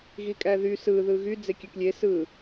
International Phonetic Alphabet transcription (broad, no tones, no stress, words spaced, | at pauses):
ɣikʼæðy sɯ ðɯɣy d͡zekʲøklʲe sɯ